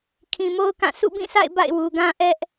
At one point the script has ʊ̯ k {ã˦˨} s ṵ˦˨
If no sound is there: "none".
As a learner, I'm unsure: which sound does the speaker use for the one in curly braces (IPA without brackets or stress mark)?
ã˦˨